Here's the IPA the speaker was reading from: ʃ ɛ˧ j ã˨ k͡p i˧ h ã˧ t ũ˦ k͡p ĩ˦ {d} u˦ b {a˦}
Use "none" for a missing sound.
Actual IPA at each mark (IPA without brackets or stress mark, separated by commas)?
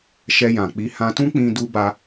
d, a˦